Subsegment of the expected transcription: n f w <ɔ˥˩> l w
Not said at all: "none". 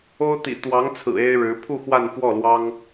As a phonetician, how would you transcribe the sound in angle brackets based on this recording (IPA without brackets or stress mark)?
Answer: ɔ˥˩